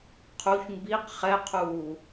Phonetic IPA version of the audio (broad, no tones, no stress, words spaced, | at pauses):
qʰuç mbiq χɛqʰuː